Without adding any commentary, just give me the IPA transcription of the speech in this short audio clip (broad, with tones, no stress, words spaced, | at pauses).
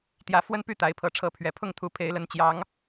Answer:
t̪jä˦ fwə˦npy˥˨ t̪a˨˦ɪ̯pʰɤ˨˦ ʈ͡ʂʰɤ˨˦pʰɥɛ˨˩pʰʊ˥˨ŋt̪ʰu˨˦ pʰe˨˦ɪ̯lə˨˦nt͡ɕjɑ˨˦ŋ